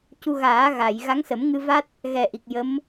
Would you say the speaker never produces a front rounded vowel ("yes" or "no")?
yes